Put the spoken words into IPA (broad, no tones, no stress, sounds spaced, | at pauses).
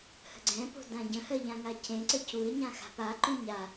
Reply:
h ə̤ ɡ͡ǀ ɛ̃ p o̤ d ã ɟ ə̃ h ɜ ʎ ã ŋ a c ẽ ǀ ə c u ɪ̯ ɲ ã x a̤ p a ǃ ũ ɲ a